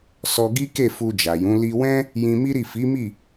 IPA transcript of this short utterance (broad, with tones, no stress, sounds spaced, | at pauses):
s ɔ˧ ɡ i˦ k e˦˨ f u˧ d͡ʒ a˨ j ũ˨˦ l i˧ w ɛ̃˦ | j ĩ˧ m i˦ ɾ i˦˨ f i˨˦ m i˦˨